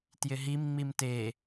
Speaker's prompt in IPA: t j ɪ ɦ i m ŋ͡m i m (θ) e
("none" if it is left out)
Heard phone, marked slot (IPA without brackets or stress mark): t